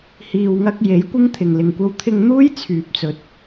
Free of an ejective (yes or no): yes